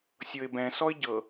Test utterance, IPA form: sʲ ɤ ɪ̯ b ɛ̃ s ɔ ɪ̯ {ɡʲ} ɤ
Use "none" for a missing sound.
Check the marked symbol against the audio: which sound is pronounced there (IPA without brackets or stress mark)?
ɟ